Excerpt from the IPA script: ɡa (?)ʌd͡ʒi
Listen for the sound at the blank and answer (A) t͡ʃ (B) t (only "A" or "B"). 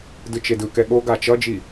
A